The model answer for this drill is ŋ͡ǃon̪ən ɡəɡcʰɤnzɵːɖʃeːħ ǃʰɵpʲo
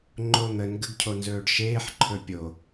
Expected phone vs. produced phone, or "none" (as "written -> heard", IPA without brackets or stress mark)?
ɤ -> o